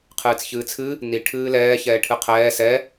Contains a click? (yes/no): no